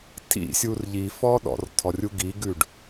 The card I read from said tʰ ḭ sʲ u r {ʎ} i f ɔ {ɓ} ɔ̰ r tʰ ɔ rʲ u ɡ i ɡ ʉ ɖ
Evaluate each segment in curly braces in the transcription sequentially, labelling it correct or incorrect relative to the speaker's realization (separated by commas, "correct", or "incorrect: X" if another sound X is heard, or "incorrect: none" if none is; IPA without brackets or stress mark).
correct, incorrect: ɗ